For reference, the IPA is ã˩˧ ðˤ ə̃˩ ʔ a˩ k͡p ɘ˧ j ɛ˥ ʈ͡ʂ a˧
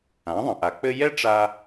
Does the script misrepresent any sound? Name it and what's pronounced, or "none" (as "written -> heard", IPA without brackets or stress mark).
none